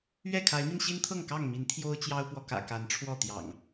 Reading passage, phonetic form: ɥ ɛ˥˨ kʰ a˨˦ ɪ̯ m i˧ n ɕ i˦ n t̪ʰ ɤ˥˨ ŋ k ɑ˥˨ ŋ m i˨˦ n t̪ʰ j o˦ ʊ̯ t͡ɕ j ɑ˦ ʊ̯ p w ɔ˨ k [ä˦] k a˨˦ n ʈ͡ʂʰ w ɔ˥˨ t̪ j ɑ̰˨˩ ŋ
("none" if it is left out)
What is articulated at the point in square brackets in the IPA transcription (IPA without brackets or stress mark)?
ä̰˨˩